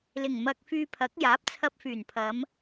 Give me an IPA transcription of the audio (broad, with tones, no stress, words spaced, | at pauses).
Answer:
lɪ˨˩ŋmɐ˧k̚fyː˧pʰɐ˨˥k̚ jaː˨˥p̚t͡sʰɐ˧p̚fyː˨˩npʰɐ˨˧m